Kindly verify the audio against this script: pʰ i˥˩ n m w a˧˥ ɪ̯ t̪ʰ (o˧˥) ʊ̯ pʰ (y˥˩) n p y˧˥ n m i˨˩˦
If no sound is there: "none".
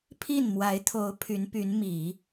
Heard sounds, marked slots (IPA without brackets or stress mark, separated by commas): o˧˥, y˧˥